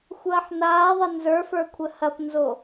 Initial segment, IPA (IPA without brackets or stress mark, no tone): xʷ